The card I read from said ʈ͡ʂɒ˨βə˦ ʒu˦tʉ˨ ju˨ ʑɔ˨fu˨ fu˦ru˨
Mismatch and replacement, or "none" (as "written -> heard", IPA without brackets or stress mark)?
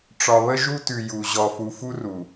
none